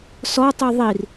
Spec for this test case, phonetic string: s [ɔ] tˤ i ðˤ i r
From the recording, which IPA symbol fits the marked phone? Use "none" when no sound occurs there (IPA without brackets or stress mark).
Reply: ɔ